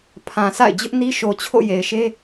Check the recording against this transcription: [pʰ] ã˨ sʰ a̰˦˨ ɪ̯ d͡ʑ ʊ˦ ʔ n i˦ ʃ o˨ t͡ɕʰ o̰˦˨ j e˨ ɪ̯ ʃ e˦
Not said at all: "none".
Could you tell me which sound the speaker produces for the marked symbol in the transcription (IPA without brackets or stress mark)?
pʰ